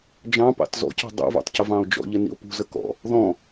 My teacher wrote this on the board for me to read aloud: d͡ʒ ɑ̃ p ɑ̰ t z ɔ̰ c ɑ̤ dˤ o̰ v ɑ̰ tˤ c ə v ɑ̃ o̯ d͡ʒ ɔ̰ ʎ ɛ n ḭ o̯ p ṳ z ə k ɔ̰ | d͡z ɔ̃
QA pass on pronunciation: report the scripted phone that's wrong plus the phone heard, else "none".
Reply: d͡z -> ð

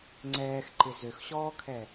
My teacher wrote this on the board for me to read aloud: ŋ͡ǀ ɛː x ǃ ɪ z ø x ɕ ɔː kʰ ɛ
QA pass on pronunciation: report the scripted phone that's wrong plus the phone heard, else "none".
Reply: none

